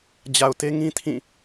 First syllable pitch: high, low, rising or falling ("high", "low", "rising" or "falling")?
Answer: low